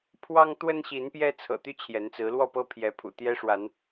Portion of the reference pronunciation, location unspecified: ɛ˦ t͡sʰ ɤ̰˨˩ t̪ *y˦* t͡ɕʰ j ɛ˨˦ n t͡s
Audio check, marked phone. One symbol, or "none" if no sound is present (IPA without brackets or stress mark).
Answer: y˦